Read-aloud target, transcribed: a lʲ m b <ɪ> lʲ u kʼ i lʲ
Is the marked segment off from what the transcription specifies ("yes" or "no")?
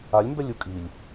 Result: yes